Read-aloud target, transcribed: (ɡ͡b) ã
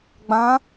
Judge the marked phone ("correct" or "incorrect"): correct